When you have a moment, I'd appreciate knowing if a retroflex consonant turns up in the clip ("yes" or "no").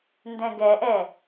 no